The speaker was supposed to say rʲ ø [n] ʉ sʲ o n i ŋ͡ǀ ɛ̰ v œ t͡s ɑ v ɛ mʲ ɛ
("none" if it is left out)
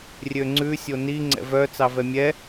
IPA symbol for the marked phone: ŋ͡ǀ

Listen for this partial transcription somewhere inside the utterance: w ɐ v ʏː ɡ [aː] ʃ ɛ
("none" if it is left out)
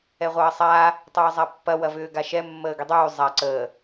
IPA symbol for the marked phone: a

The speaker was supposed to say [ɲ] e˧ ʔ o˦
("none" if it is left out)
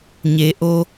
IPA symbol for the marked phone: ɲ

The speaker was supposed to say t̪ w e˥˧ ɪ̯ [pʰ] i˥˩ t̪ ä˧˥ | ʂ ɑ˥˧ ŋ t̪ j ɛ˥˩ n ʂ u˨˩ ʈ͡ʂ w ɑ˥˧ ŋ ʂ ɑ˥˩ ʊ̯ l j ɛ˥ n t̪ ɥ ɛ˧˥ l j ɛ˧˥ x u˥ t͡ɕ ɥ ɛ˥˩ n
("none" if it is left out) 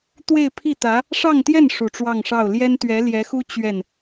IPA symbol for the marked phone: pʰ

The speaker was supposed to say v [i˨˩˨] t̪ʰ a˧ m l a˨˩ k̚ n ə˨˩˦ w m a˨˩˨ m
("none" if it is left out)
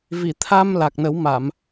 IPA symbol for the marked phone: i˨˩˨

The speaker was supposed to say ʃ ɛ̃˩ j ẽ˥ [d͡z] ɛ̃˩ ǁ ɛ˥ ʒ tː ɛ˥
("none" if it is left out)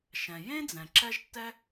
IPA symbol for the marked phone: d͡z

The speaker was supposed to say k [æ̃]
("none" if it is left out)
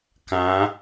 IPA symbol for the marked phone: ã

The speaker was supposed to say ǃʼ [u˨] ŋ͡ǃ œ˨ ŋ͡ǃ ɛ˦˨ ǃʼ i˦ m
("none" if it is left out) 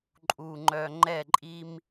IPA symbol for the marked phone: u˨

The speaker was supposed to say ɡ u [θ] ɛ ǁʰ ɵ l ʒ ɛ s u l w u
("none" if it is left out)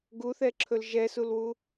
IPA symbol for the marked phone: θ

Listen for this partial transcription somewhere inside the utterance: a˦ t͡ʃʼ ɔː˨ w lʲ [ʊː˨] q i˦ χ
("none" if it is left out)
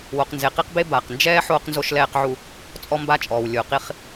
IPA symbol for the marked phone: ʊː˨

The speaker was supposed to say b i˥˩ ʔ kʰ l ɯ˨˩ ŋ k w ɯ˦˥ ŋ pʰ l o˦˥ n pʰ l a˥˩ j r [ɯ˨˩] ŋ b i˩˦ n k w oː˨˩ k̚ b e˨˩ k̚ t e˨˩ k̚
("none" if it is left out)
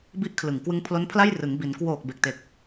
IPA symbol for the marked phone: ɯ˩˦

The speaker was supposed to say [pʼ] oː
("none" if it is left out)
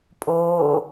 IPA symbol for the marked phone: pʼ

